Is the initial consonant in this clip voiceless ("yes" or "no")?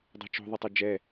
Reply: no